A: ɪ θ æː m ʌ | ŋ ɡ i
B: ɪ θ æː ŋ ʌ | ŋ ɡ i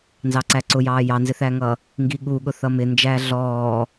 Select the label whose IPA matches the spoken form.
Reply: B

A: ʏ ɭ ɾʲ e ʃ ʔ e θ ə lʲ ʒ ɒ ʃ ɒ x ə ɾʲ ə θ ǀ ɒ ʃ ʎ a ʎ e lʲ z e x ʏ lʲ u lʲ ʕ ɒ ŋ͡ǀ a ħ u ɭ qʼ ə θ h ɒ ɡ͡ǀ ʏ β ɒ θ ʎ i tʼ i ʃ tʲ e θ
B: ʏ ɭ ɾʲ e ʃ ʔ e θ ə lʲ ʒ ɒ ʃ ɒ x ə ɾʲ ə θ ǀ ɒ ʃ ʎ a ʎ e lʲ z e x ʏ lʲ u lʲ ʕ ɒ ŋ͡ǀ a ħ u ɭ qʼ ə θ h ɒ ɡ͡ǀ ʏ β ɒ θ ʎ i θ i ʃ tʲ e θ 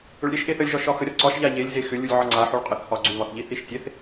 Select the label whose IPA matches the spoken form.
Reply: B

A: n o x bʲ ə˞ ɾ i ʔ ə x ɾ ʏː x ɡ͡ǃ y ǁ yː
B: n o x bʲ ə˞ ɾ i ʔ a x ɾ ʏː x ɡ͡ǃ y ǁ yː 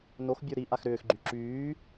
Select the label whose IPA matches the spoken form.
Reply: B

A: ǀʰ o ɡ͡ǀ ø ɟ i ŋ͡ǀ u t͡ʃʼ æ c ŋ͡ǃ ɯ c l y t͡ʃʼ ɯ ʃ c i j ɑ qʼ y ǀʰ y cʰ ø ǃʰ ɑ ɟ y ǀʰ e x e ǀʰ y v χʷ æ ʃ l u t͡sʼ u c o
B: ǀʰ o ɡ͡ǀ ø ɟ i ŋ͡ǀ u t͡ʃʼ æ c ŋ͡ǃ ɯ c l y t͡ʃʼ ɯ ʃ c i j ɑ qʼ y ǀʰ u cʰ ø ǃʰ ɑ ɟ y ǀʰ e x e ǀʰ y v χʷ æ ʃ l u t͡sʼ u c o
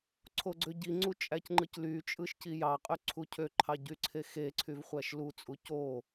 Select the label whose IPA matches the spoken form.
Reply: B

